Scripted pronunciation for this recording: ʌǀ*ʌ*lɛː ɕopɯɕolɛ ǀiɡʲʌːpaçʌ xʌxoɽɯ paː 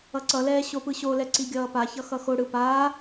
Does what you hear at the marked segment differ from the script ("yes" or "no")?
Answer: no